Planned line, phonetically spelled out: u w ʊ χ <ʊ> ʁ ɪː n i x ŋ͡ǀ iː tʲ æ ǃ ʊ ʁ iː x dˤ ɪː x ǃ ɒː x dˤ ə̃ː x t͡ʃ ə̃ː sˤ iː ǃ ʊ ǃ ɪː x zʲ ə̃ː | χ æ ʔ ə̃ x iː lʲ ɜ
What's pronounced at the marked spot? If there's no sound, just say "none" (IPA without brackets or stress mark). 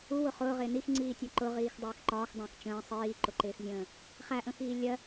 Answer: ʊː